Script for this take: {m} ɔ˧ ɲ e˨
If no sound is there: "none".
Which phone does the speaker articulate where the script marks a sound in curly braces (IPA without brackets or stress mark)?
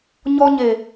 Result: ɲ